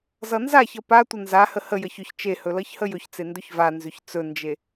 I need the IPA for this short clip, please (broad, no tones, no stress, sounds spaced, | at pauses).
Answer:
z ʌ n z a ç ʌ p a tʷ ə n z a h ə h ə j ʌ ç ʏ ç t͡ʃ e h ɵ l ʌ ç h ə j ɵ ç t͡s e n d ɵ ç v a n z ʏ ç t͡s ɵ n d͡ʒ e